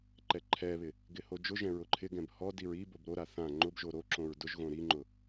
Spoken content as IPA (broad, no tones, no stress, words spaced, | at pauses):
ǃɛǃʰɛβɪ | ɡɪhod͡ʒʊʒɛ̃ ɹʊǃʰɪɡɛ̃b hɔdiɹ i bobɾoɾa θã ŋ͡ǃʊbʒo ɾoǁõɹ dʊʒ ɣõɾiŋ͡ǃʊ